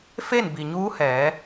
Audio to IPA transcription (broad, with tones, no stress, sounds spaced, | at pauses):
f e˥˨ n b i˩ ɲ uː˧˥ h ɛː˩˧